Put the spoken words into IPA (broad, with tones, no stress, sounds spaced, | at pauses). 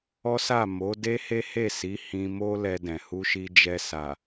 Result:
ɔ˦ s a˦˨ m o˨˦ d e˦ h e˦ h e˦˨ s i˨˦ h ĩ˧ m o˦ l ɛ˧ d ɛ̃˨ h u˧ ʃ i˧ d͡ʒ ɛ˧ s a˨